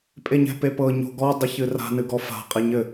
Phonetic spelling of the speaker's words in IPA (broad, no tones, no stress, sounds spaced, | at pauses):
pʼ e ɲ ɛ̤ p e p ɤ ɲ o̤ ɡ ɔ dˤ ɘ ç ɨ r a̤ n ɨ ɡ ɔ f a̤ qʼ e ɲ ɘ